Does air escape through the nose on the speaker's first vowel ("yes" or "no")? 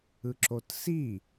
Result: no